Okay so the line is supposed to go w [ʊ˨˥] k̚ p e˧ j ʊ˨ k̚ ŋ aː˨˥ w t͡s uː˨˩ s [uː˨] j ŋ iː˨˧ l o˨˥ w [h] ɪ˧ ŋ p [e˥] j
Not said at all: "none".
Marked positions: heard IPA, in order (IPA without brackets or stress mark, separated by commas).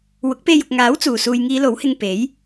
ʊ˨˥, uː˨, h, e˨˥